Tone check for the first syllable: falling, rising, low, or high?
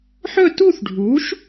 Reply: falling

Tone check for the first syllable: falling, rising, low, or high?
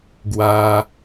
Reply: high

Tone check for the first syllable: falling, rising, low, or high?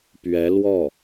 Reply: rising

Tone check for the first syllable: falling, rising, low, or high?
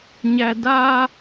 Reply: high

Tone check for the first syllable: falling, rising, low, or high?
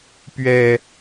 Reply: low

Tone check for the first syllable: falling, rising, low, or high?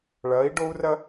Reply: rising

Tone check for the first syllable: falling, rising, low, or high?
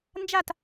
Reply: falling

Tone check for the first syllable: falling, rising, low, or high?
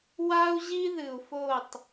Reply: high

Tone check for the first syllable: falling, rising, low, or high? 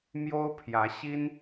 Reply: high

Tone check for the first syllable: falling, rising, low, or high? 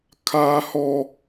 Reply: high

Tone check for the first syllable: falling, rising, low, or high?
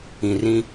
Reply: low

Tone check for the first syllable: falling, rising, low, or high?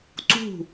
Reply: falling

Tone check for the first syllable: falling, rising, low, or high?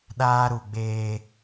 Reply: high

